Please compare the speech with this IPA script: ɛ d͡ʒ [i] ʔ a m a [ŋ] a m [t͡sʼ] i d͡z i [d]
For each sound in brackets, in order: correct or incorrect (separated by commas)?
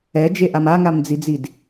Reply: incorrect, correct, incorrect, correct